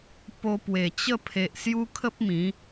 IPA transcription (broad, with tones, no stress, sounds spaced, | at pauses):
p o˧ p w e˨˩ t͡ɕ ə˥˧ pʰ e˨ ʔ s j u˦ kʰ ə˦ p̚ m ĩ˨˦